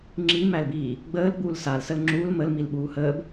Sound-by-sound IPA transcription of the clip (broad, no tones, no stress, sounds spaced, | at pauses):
ŋ͡ǁ i m æ l b iː | ɡ͡b əː l ɡ͡b uː l s a l s ə l ŋ͡ǁ uː l m ə l m i l ɓ uː h əː b